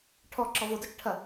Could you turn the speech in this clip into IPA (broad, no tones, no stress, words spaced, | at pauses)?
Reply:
ʈʰɔ ǁɔvodɔt͡ʃʈʰɐ